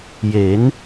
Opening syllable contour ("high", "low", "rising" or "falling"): rising